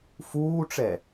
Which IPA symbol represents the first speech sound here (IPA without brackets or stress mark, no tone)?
f